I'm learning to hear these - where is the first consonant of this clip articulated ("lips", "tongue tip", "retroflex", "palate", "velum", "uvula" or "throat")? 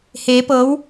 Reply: throat